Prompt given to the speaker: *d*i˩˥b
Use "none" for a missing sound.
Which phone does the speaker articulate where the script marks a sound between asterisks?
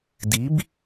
d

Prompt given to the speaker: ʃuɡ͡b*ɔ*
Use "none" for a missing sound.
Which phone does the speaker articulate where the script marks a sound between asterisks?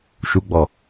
ɔ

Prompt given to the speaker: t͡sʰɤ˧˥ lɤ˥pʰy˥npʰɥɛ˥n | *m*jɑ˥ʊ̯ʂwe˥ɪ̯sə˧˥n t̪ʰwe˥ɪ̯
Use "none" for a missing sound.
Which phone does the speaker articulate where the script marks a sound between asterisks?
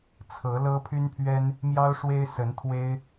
m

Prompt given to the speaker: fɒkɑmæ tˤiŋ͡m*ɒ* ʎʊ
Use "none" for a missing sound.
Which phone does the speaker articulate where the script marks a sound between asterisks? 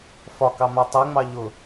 ɑ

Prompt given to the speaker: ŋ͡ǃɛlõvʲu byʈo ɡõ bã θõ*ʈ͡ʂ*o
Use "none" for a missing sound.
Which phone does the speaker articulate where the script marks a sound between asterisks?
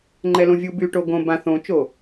t͡ʃ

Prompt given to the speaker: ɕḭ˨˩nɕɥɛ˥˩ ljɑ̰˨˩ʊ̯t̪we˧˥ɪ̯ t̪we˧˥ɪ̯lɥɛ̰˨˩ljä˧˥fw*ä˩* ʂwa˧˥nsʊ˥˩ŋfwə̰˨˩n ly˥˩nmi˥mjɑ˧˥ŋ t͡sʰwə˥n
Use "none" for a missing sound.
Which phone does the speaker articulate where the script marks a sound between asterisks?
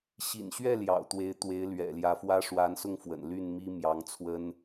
ä˥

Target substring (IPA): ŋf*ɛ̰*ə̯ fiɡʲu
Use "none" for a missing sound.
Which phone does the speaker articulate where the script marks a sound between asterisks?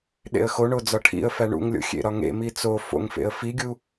ḛ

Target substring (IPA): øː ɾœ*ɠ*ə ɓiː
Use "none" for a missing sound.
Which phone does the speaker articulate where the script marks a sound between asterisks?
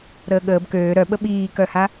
ɓ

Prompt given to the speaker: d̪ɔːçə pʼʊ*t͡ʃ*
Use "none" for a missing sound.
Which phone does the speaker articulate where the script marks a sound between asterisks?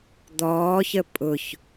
ç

